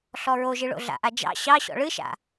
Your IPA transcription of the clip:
ɬ ɔ ɹ o ʒ ɨ ɭ o̰ ɮ a̰ ʔ a d͡ʒ ɑ̰ ɕ ɑ ɕ ɔ̰ ɭ ɨ ʃ a̰

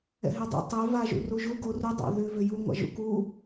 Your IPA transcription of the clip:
ɛ̰ ɦ ɛ dˤ ɛ̰ tˤ ɛ v a ʒ ṵ r u ʒ u ɡ o r u dˤ a̰ ð ʏ v ʏ j u ŋʷ a̰ ʒ ṵ k u

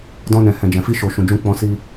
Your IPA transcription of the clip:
d ɔ̃˧ n ɛ̃˨ h ɛ̃˨ d͡ʒ ɛ̃˨ f i˧ ʃ o˨ ʃ ũ˨ d͡ʒ ũ˧ k͡p ɔ̃˧ s i˧

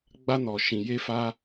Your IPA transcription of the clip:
ɡ͡b a˦ n ɔ˧ ʃ ĩ˧ j e˦ f a˦

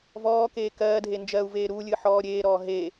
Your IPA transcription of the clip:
v ɔː k eː k ɜː dʱ e n d͡ʒ ɜ u̯ v eː ɾ uː lʲ ɨː ħ ɔː ɾʲ eː ɾ ɔː ɦ e

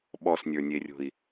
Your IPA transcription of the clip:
ɓ ɔ s nʲ ə˞ nʲ e rʲ o̤ i̯

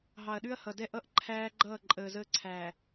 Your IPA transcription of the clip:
ɦ ɑ˨ ɐ̯ ɗ ʉ˦ ɐ̯ h ʌ˨ d ɛ˦ ʔ ʌ˦ ʔ ǃʰ æː˦ ɡ͡ǃ ʌː˦˨ ǃʼ əː˨ z əː˦ ǀʰ æː˨

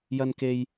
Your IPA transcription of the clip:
j ɐ˧ n k e˧ j

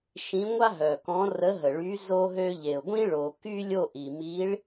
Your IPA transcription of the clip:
ʃ ĩ˧˥ ŋʷ a˥ ɦ œ˨ k ɔ̃˧˥ r ə˧˥ ɦ ə˨ ɭ y˧˥ z o˥ ɦ ø˥ ʎ e˨ ʊ̯ ɡʷ ĩ˥ ɭ o˨ k y˥ lʲ o˥˧ ʔ i˨ m i˧˥ ɭ

